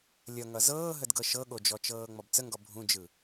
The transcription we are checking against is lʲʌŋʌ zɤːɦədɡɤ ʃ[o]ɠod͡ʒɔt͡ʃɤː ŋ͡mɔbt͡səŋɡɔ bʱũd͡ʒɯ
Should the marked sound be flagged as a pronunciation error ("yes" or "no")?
yes